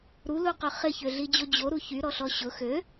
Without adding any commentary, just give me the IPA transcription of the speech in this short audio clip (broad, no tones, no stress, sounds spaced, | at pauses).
ɾ u l u q ø χ ɪ ç ø ɮ i d͡ʑ o d͡ʑ o ɾ u ç y ɾ ɔ ɬ ɔ ɕ ʊ x ø